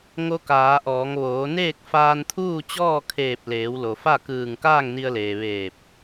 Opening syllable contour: rising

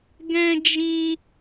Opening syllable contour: high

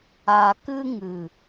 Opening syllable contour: low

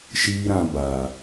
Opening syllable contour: high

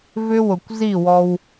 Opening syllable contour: high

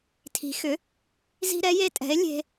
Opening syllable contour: rising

